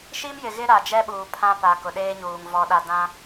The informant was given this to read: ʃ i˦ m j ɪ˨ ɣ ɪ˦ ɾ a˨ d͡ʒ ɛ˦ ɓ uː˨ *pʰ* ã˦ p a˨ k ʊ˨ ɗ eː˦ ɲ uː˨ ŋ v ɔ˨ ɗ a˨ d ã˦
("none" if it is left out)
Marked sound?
pʰ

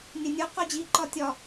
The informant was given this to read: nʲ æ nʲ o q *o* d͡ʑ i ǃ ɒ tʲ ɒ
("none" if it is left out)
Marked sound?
o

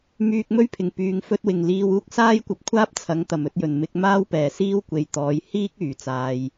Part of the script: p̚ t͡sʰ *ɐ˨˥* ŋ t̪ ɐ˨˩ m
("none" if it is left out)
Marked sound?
ɐ˨˥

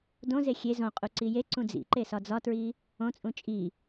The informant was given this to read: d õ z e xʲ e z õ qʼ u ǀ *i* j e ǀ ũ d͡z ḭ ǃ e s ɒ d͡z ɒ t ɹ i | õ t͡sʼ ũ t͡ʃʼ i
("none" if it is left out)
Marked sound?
i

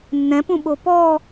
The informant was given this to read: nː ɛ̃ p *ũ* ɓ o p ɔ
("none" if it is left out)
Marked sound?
ũ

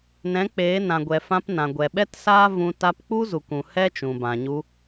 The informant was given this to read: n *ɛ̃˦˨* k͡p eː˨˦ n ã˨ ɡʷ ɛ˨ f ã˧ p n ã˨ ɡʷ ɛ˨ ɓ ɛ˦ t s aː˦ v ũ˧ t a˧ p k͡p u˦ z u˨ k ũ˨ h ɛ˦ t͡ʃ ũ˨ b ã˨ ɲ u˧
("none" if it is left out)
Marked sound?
ɛ̃˨˦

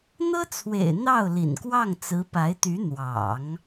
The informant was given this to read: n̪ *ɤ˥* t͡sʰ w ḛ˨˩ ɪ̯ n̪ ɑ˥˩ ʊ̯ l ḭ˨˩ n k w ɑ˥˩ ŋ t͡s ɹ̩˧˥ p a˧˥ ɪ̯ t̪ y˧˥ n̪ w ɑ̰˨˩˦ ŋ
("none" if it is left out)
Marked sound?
ɤ˥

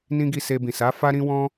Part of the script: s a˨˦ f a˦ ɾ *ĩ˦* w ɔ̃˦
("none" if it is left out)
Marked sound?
ĩ˦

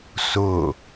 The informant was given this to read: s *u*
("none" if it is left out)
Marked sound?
ʊ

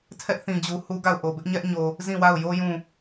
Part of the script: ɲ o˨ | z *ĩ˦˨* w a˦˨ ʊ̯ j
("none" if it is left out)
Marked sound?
ĩ˦˨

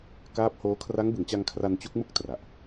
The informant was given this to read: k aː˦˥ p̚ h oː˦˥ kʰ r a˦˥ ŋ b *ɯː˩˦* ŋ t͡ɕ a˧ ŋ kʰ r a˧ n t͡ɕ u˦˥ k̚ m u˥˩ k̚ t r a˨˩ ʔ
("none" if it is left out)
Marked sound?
ɯ˩˦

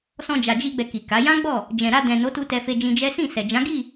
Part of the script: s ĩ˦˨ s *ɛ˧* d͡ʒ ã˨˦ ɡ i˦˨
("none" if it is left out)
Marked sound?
ɛ˨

